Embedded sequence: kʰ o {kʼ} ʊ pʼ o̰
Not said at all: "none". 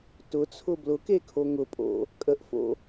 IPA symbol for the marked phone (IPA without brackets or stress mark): ŋ